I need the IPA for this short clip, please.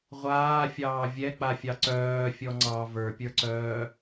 ʁʷ aː fʲ ɑː vʲ ɛ k͡p a fʲ ɑ ǀ œː fʲ ɔ ŋ͡ǀ ɑ v ə˞ pʲ ə˞ ǀ œː

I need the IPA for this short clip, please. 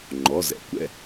ŋ͡ǃ ɔ˩˧˩ z ɛ̰˩˧ kʷ ɛ̰˧˩

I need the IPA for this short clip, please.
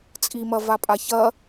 t͡sʼ i m ɐ v a pʼ a ç ɐ

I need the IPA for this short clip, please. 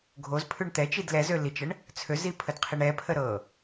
ɡʱ o z pʰ ʉ ɳ t̪ ɛ t͡ʃ i d l ɛ z ø l i t͡ʃ ə ɳ | t͡sʰ ø z i pʰ ə d qʰ i ɳ ɛ pʰ ə ɾ ɤ

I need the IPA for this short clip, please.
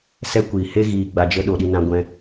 s ɛ˦ kʷ iː˨ h e˦ ɣ iː˨ ɡ͡b a˨ d͡ʒ ə˧ ɗ o˨ ɗ i˧ n ã˧ ɡʷ ɛ̃˧

